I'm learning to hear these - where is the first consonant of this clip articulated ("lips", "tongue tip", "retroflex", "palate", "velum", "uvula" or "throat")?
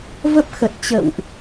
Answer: lips